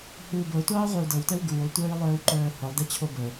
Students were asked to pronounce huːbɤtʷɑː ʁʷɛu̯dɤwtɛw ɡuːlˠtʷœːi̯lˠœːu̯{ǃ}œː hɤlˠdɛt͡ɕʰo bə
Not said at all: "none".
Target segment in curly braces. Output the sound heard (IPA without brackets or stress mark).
ǃ